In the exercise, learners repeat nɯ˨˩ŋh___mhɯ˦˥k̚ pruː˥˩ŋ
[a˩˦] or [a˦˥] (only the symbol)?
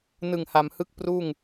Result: a˩˦